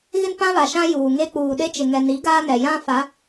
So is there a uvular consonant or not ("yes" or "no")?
no